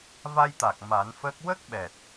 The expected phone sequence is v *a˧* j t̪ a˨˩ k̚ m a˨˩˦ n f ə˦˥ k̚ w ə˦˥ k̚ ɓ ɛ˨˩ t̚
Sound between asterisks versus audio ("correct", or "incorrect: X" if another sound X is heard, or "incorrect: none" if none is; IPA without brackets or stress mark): correct